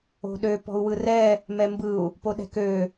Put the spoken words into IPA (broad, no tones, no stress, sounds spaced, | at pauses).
o̤ ɗ ø p ɔ̤ u̯ w ɯ r ɛ | m ɛ m b ɯ u̯ | p o ɗ ɛ̤ k ø